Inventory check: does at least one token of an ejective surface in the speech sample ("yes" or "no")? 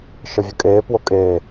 yes